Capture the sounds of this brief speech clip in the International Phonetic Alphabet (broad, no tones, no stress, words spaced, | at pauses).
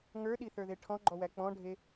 ŋə˞ɗiθə˞ðe ʈʰɔ̃ɡ͡ǃɔwæ k͡pɔ̃ɖʱe